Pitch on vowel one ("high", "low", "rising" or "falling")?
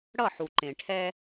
falling